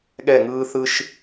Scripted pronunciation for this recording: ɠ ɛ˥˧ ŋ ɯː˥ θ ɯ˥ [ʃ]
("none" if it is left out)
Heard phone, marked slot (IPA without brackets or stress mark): ʃ